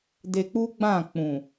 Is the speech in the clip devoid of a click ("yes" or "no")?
yes